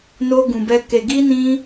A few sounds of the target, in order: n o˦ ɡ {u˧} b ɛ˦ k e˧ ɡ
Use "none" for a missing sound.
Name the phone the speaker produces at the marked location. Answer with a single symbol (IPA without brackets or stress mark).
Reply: ũ˧